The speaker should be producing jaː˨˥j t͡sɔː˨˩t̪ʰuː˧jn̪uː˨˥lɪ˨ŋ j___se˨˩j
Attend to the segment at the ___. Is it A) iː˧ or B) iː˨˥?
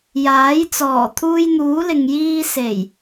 A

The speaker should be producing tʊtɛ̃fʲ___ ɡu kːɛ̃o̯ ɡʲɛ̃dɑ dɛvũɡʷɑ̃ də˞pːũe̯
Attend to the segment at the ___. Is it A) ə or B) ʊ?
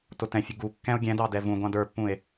B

